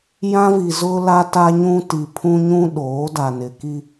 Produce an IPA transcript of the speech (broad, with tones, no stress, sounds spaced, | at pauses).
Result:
j ã˦ v i˨ z ʊ˦ l a˦ t a˦ ɲ ũ˦ t i˨ pʰ ũ˦ ɲ ũ˦ ɗ oː˨˦ d a˨ n ɪ˨ k i˦